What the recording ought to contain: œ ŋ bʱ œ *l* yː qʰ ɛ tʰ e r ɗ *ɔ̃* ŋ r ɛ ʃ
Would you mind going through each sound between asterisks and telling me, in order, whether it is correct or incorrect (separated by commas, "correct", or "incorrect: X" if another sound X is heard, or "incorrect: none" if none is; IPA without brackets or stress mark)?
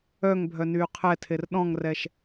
incorrect: n, correct